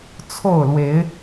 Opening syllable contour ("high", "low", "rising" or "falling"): falling